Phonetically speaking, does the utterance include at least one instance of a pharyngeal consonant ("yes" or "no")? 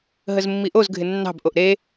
no